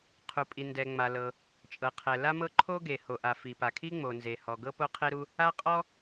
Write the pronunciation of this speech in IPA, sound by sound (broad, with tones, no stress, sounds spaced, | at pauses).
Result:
qʰ u˩ pʼ i˩ n d ɛ˩ ŋ͡m a˩ l ɤ˩ | t͡ʃʼ ɤ˩ qʰ ɛ˩ l a˥ m ɤ˥ ǃʰ o˥ ɡ e˩ h o˩ ʔ a˩ f i˩ p a˩ kʰ i˥ ŋ͡m o˩ n z e˩ h ɔ˩ ɡ ɤ˥ p o˥ qʰ e˥ ɾ u˥ | a˥ qʼ ɔ˥